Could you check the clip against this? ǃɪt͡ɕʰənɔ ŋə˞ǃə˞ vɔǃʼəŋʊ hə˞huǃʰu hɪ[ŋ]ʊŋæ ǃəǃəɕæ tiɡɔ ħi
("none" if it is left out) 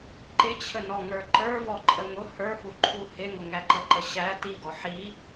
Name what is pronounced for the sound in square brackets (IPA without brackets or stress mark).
ŋ